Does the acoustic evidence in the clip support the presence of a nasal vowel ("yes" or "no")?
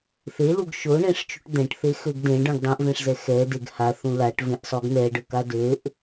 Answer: yes